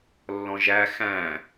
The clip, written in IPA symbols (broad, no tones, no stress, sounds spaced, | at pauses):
lː ɔ̃ ʒ æ x æ̃